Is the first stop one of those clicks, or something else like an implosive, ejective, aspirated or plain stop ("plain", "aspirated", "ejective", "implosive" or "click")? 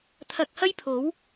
aspirated